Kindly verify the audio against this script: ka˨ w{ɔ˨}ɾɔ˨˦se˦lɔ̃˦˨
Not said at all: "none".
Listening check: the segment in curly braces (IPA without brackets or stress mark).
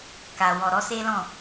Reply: ɔ˨